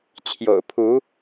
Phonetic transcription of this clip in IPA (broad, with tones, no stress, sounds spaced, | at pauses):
t͡ɕʰ j o̰˨˩ ʊ̯ pʰ u˨˦